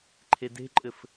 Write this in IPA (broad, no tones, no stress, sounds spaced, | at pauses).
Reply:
ǃʰ e d e̤ ǃʼ ɘ f